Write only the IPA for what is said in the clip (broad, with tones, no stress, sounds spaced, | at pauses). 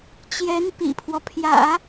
t͡ɕ j ɛ˧˥ n p ḭ˨˩ pʰ w ɔ˦ pʰ j ä̰˨˩˦